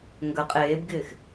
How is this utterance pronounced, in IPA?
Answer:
ŋ ɡ ə qʼ eː b ɡ ɪː x

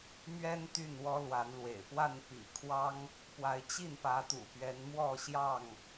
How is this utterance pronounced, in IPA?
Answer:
m ɥ ɛ˦ n t̪ y˥˨ n w ɔ˦ l w a˨˦ n l w ḛ˨˩ ɪ̯ p w a˥˨ n p ḭ˨˩ kʰ w ɑ˦ ŋ | p w a˨˦ ɪ̯ t͡ɕ i˥˨ n p ä˨˦ t̪ ṵ˨˩ p ɥ ɛ˨˦ n m w ɔ˥˨ ɕ j ɑ˥˨ ŋ

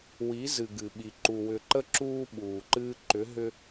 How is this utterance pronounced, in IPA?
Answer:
w i˨˦ z ɨ˨ ɡ ɨ˨ ɓ i˨ ǃ u˨ w ʏ˨ ǃ ə˦ ǁ uː˦ ɓ uː˨ ǃ ɨː˦ ǃ ʏ˨˦ ɦ ʏ˦

